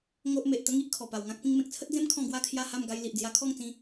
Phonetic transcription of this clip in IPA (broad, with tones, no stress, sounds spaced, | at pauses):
ŋ o˦ ʔ m e˨ ʔ t̪ ə˦ ŋ i˦ ʔ kʰ ɔ˨˩ p a˨˩ w ŋ ã˦ k̚ p ĩ˧ ŋ m ẽ˨ k̚ t͡sʰ ə˦ t̚ d͡z ẽ˦ m kʰ ɔ̃˥˧ ɡ w a˥˧ kʰ j a˥˧ h a˥˧ m ɡ a˦ j l i˨ ʔ d͡z j a˧ kʰ ɔ˥˧ ŋ t͡s ĩ˧